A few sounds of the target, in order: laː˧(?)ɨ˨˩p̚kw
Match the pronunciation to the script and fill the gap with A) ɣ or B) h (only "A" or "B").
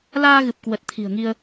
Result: A